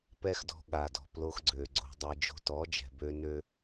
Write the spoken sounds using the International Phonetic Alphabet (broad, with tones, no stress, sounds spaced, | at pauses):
p ɛ˦ x d ɔ̤˧ ɠ a˨ d ɔ̤˨ p l o˧ x ɡ͡ǀ ø˨ ɡ͡ǀ o̤˧ dˤ e˧ d͡ʒ o̤˧ t ɔ˨˦ d͡ʒ ɛ̤˨ b ø˦ n ø˦